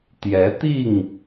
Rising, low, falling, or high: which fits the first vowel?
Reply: rising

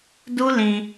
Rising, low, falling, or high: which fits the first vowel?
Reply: high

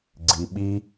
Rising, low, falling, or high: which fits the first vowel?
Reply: low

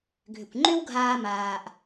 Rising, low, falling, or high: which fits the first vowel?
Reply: low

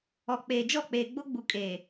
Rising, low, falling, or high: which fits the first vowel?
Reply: low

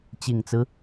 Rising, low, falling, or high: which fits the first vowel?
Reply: low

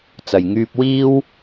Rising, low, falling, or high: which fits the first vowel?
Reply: low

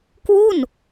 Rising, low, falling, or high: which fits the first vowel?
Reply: falling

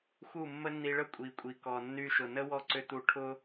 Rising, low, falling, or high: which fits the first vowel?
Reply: falling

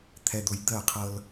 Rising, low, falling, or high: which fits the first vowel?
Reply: low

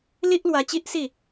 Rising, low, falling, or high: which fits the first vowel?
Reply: high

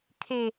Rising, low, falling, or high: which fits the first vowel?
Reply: high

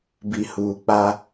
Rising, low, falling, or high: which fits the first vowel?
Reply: low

